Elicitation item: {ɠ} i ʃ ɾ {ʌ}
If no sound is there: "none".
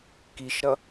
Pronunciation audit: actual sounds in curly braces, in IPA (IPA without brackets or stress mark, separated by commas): k, ʌ